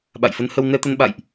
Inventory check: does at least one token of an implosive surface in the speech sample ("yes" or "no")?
yes